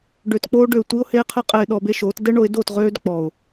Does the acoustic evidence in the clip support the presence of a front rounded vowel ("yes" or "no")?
yes